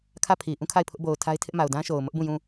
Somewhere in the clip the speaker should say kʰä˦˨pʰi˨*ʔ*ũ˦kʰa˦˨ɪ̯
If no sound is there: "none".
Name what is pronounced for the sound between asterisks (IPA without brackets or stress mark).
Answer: ʔ